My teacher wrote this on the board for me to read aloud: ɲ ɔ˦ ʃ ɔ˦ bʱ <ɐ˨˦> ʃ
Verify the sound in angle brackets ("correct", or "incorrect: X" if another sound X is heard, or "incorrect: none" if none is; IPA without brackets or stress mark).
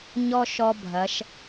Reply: correct